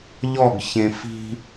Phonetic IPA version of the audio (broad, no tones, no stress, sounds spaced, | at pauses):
ʎ ɔ ɡ ç ẽ f i̤